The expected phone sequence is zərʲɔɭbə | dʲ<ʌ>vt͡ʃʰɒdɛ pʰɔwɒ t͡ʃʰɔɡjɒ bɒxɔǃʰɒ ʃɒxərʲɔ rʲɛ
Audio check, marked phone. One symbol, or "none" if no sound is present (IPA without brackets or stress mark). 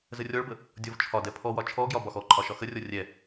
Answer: ɔ